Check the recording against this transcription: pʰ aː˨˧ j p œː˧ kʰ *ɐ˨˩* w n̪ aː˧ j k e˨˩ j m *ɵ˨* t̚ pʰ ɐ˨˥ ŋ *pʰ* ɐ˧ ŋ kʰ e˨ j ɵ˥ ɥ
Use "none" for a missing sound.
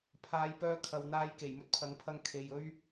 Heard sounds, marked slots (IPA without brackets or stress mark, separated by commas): ɐ˨, ɵ˥, pʰ